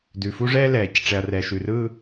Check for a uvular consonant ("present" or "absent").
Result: absent